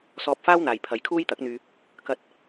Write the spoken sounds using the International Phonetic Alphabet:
s ɔː˧ p̚ f aː˥ w n̪ aː˨ j pʰ ɐ˧ j kʰ uː˥ j t̪ ɐ˨˥ k̚ n̪ yː˧ | k ɐ˧ t̚

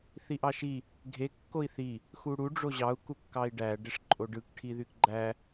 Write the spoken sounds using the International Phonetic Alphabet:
θ i ʔ ɑ ʃ i | ɡʱ e kː o i̯ θ i | x u ɽ u ɖ͡ʐ o ʑ ɑ u̯ k u kː ɑ i̯ ɖ æ ɖ e ʂ ǃʼ o ɖ ɯ k ʈʰ i ð y k ɡ͡ǃ æ

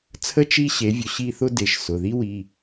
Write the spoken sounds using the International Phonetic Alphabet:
t͡sʰ ə˥ t͡ʃ i˥ ɕ e˩˥ vʲ ʊ˩˥ ɕ i˥˧ θ ʊ˥ d e˩˧˩ ʃ s ʊ˩˧˩ ð i˥ w i˩˧˩

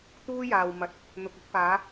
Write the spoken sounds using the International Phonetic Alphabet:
t̪ uː˥ j aː˨ w m ɐ˨˥ t̚ | n̪ ʊ˨ k̚ ɪ˨˥ k̚ p aː˨˥

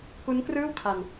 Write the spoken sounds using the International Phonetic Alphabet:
k u˦˥ n k r ɯː˥˩ w kʰ a˧ n

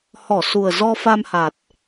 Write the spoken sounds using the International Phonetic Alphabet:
h ɔ˧˩ s u˨˩ ə̯ z ɔ˧ f a˧ m h a˨˩ t̚

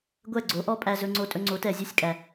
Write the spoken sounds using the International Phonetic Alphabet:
ɡʷ ɛ˥˩ ɡ͡ǀ o˩˥ ʔ ɔ˥ pʼ æ˧ z ɵ˧ ŋ͡ǀ o˧ tʼ ɵ˧ ŋ͡ǀ o˩˥ t ɛ˩ zʲ ʉ˥˩ sʲ kʼ æ˩

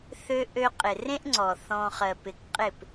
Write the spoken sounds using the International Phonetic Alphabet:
θ ø˦ ʔ ø˦ qʼ ɪ˨ r ẽ˦ ʔ ŋ͡ǀ ɔ˨ θ ɔ̃˦ χ ɜ˧ p ɪ˧ k qʼ ɪ˦˨ p

